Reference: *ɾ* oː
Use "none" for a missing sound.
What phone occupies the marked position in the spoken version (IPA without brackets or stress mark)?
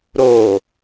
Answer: ɾ